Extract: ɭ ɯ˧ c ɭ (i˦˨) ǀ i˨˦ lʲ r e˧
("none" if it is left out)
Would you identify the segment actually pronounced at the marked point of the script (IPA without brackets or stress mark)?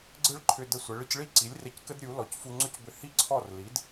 i˦˨